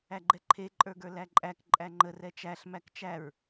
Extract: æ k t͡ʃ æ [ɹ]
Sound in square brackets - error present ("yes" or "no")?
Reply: no